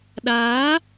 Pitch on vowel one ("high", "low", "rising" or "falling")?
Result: rising